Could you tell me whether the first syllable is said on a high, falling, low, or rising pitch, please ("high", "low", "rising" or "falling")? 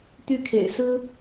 falling